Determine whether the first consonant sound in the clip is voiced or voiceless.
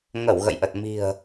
voiced